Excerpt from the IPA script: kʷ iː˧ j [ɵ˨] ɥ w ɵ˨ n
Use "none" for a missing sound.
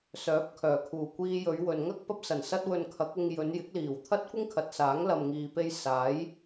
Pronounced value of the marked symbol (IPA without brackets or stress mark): ɵ˨˧